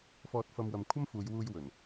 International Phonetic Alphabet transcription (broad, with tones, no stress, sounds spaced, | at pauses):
f ɔː˧ t̚ f ɐ˧ m w ɐ˨ m kʷʰ ɐ˥ m f uː˨˧ j w uː˧ j w ɵ˨˩ n